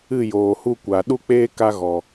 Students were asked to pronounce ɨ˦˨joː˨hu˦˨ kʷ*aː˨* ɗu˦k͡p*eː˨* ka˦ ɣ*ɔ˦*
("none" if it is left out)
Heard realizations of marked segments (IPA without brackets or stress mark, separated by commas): a˨, eː˦, ɔ˨